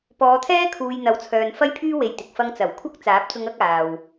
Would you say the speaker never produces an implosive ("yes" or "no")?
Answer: yes